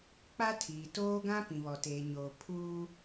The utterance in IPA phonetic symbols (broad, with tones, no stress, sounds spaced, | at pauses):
k͡p a˦ tʰ iː˨ t oː˦ ɡ ã˦ p ĩ˨ β ɔ˨ t eː˨ ɲ oː˨ pʰ uː˦